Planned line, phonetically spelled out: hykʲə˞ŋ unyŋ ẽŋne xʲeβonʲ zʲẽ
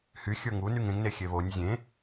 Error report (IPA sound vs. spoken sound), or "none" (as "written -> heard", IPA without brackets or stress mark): kʲ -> xʲ